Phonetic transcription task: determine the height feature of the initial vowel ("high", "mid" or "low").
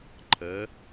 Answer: mid